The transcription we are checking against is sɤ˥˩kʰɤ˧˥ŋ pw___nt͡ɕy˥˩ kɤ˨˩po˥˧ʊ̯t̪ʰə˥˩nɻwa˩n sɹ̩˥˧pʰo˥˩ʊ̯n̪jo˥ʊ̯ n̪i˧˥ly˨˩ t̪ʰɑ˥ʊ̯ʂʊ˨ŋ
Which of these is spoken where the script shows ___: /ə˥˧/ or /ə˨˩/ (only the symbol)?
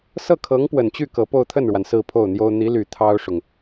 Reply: ə˨˩